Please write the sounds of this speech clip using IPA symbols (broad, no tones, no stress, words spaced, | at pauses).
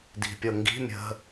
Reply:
di̤pʲɤŋɡi̤ mʲə̤